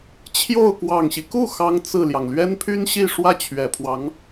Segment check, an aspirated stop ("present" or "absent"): present